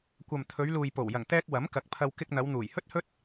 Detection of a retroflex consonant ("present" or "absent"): absent